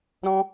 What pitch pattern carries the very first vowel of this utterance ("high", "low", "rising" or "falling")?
high